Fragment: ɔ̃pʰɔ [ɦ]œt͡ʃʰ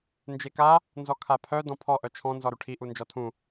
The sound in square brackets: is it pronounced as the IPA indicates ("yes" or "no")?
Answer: no